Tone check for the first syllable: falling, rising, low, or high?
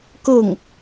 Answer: falling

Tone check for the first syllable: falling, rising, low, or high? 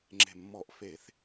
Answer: low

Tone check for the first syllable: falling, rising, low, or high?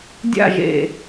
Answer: falling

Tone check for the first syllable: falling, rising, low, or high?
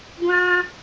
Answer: high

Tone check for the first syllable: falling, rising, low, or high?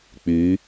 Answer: rising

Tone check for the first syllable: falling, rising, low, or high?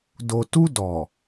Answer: low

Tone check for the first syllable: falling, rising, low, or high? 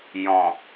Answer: low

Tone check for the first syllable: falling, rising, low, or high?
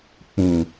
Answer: low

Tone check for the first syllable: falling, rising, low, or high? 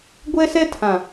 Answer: high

